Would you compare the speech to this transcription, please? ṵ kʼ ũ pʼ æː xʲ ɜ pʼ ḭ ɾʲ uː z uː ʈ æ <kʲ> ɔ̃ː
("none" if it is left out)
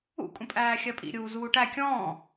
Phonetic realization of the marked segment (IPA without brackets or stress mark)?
kʲ